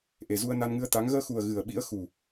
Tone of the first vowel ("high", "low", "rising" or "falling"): low